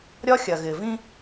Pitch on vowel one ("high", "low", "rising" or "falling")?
high